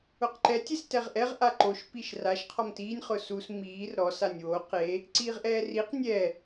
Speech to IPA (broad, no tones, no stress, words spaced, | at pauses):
ʊqǃɛ tʲestɛʁʔɛʁʔa ǃoʃ piʃraʃqʰɔm tiːnʲ χʊsus miːr ɾɔsanʲ wo qe | ǀiːʁʔɛːriq nʲɛ